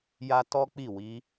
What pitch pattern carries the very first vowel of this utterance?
high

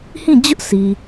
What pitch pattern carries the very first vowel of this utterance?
falling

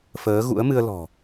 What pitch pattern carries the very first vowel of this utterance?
rising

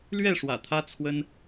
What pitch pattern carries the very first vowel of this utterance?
falling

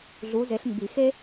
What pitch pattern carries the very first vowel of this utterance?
rising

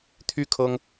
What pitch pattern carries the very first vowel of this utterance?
high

